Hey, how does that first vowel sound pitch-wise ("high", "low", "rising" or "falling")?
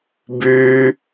high